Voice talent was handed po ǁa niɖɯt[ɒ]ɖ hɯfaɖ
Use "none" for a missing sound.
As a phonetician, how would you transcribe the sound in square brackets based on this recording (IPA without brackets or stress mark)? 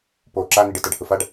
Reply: ʌ